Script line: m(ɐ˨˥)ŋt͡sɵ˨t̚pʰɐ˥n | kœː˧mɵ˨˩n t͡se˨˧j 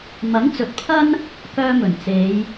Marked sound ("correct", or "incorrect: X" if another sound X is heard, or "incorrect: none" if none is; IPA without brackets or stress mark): correct